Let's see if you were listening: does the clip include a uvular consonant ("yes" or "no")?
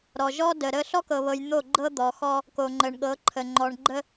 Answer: no